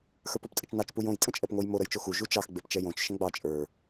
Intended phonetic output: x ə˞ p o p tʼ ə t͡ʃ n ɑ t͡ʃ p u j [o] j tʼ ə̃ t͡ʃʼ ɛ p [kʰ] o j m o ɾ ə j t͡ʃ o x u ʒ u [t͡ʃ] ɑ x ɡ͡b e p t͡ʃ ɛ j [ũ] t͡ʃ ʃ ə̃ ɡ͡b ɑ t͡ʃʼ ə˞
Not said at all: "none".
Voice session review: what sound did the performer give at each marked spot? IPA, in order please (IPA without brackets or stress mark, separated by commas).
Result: õ, ŋ, t͡ʃ, õ